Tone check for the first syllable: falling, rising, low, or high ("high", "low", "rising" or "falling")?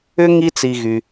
high